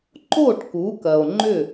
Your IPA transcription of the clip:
ǃo˥˩ʈ ku˩˥kɐ˩o̯ ŋ͡ǃʏ˥˩

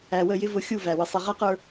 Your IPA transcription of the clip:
æ˨wə˦˨ jɪ˦vʊ˨˦xʲu˦˨ væ˨wə˦ sˤi˨ʁæ˦qə˞˦

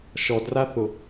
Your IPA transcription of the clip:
ʃɔdraθʊ

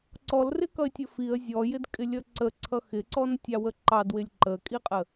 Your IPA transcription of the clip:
ǀɔlrɪkʌɪ̯tʲə fiə̯ zʲɔjɪd kʼɪlʲʌǀəǀʰʌ xɪǀɔn tʲɑwəǃɑdwɪlʲ ǃəkʼiqʼə

